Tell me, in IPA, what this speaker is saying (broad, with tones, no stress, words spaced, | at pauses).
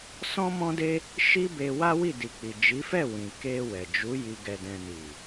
sɔ̃˦mɔ̃˦de˦ | ʃi˦be˧ wa˦wi˦˨di˨k͡pi˨ d͡ʒi˨˦fɛ˦˨ wĩ˨ ke˧ wɛ˨ d͡ʒu˨˦ ji˧ ɡɛ˨dɛ̃˨ni˨